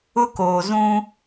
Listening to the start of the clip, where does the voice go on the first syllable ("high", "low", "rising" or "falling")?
high